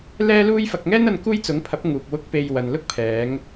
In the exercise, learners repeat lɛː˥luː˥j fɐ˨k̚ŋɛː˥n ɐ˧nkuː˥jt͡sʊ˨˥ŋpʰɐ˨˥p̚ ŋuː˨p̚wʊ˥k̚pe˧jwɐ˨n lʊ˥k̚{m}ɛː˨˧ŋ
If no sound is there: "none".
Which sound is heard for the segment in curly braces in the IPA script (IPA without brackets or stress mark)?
pʰ